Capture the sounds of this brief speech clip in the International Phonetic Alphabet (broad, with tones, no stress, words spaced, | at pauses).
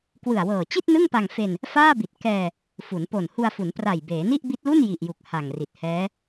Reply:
kwɯ˨˩a̯wɤː˨˩t͡ɕi˥˩t̚ nɯ˥˩ŋpa˧ŋ fe˧n | faː˥˩bi˨˩t̚ kɛː˧ | fu˩˦n po˨˩n hu˧a̯fu˩˦n pra˨˩j beː˩˦ni˥˩ʔbi˦˥t̚lu˥˩n ji˨˩ʔju˨˩k̚ ha˨˩ŋri˨˩t̚hɛː˦˥